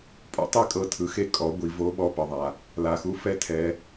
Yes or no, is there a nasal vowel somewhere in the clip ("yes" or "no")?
no